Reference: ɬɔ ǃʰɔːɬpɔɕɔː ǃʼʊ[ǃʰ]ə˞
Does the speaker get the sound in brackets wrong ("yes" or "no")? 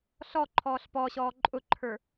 no